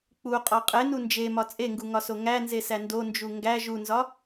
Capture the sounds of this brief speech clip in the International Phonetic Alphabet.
k͡puqʼɒ qʼenu nd͡ʒemɒ t͡sʼeŋɡuŋɒso ŋænzesæ ndond͡ʒu ŋɡæ ʒunzɒ

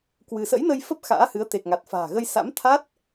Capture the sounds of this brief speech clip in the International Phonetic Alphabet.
kwɨ˧ sə̰˧˥jnə˧j fə˦˥p̚ xa̰ː˧˥hɨ˨˦ə̯t̪e˨˩k̚ŋa˨˩t̚ fa̤ː˨˩ɣə˧jsa̰˧˥mt̪ʰa˦˥t̚

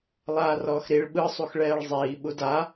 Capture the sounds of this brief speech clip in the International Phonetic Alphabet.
lˠaːrɔːxɾiɭ ɓɯ sˤuxɭɛːɭzˤiː ɓuda

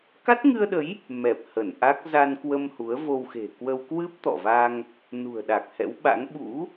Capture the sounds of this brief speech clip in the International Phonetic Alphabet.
ka˦˥t̚ŋɨ˧ə̯ɗə˨˦j | mɛ˨˩p̚ hə˧˩nʔa˦˥k̚ za˧nkwə˧m hu˨˦ə̯vo˧wxe̤˨˩kwə˧w kwɨ˦˥p̚ t̪ɔ̰˧˨va˧ŋ | nṳ˨˩ə̯ɗa˨˩k̚ hɛ̰˧˥wɓa̰˧˥ŋ ɓṵ˧˥

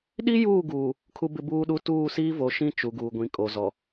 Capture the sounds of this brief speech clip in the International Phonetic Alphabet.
ɗi˦juː˦˨ɡuː˨ | kʰu˦bɪ˦buː˦ɗu˦ tuː˦˨siː˦vo˨ʃĩ˦ t͡ʃu˨ɡuː˨ɡʷĩ˨ kʼo˨ zɔ˨

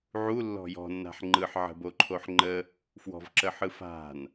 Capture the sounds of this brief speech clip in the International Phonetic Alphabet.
ʕulːɔ̤ jɔ̤nːa̤ħ ŋ͡ǃɯħʕə̤boǃʰoħ ŋ͡ǃə | fwɔ̤vǁəħɯ fa̤n

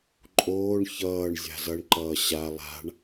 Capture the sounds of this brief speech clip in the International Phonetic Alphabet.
ǃʼoːɳ çʌːɳ zʲa̤zʌɳǃʌː ɕa lˠa̤ɳ

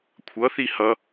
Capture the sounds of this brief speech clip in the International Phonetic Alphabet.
kʷʰʌθi hʌ

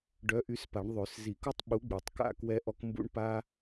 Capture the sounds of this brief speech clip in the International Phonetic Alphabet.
ɖœ˨˥ʔy˨˥spa˨˩˦ɳ ðˤø˨˩˦s zi˨˩˦ku˦tˤɓu˨˥ ɡ͡bi˨˩˦tˤka̰˥˨ kwɛ˦ʔɔ˦k mbṵ˦ɳpa˦

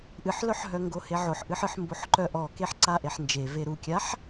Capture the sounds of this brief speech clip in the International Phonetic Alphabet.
ʔɨħlœħɦœŋɡo heʕoħʔɨħɨħ mboħǃœʔɔ keħǀaʔeħnd͡ʒe veɾukʲaħ

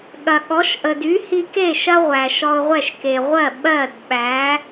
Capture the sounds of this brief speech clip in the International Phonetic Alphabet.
ɠɐ˩ɠɔ˩˥ʃ ʔə˩dy˩˥hi˧ke˥˩ ʃɐ˥ʁʷæ˩ʃɔ˧ʊ̯ʁʷɛ˥˩ʃ ke˩ ʁʷɜ˥˩ ɓɜ˥˩dɓæ˩˥

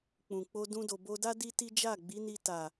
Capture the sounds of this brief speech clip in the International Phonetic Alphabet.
k͡pũ˨k͡po˧ dũ˦do˧ bo˧da˦ di˦ti˦ d͡ʒa˦˨ɡ͡bi˨˦ni˧ ta˨

